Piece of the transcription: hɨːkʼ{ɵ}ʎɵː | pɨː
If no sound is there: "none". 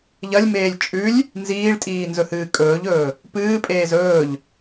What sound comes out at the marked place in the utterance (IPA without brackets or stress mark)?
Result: ɵː